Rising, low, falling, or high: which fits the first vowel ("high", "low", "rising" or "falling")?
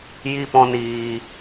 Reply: high